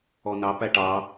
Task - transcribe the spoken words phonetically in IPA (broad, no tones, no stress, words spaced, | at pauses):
ɔnɑpæ ʈɑ